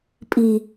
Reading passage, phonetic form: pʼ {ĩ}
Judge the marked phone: incorrect: i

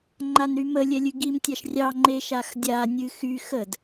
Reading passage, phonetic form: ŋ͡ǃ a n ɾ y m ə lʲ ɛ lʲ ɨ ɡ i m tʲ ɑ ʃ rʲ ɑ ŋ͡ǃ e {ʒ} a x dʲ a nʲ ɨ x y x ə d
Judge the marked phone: incorrect: ʃ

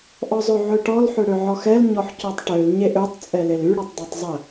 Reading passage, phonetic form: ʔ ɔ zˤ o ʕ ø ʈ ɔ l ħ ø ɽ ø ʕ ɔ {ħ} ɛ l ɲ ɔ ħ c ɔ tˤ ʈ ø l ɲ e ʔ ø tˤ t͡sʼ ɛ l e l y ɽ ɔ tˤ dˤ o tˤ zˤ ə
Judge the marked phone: incorrect: x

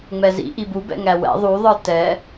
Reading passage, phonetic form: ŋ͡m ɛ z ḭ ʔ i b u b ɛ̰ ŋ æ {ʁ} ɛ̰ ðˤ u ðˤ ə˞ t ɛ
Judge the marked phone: incorrect: w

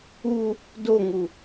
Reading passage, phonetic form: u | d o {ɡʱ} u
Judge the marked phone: incorrect: ŋ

